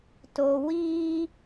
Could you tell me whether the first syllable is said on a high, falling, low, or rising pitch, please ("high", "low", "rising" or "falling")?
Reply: low